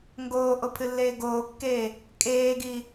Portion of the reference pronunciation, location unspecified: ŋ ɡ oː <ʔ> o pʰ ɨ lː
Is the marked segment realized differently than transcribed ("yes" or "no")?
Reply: no